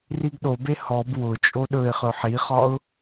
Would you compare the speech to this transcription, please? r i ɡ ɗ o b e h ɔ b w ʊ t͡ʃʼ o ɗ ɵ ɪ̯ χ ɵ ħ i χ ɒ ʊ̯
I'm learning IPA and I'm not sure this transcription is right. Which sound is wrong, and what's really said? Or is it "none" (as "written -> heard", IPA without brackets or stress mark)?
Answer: none